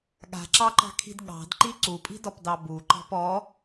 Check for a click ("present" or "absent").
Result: present